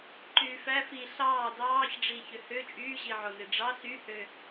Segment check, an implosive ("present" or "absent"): absent